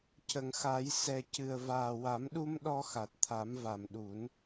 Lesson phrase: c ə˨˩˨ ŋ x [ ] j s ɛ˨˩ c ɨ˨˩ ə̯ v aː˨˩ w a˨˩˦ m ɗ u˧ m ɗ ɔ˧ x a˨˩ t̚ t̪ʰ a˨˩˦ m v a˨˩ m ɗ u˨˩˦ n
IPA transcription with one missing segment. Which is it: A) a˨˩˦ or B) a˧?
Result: A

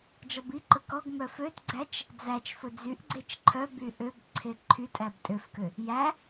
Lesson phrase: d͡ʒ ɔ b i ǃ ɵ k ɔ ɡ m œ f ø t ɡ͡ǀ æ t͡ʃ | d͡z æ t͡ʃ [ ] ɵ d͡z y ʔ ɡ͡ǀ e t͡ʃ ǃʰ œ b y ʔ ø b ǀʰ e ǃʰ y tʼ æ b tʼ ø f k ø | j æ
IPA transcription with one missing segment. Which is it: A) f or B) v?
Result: A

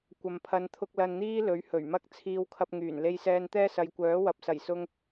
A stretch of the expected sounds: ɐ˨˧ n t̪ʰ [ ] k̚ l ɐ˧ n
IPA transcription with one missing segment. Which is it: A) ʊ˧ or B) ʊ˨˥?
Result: A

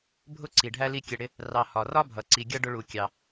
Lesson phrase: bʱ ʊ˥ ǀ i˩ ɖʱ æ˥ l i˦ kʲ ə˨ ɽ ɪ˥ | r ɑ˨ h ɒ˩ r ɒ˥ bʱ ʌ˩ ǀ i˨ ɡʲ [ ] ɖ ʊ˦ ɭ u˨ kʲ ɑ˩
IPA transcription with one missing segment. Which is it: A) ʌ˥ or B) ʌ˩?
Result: A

